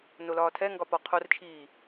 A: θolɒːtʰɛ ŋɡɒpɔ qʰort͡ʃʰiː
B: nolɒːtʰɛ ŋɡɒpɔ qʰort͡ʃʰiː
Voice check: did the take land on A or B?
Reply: B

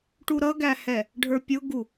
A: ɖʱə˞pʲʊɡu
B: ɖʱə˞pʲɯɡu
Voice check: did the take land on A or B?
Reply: A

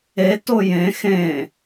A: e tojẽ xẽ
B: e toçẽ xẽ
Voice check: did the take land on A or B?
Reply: A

